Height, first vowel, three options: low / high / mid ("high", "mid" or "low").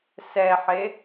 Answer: mid